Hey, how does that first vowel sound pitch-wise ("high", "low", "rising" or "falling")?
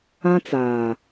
high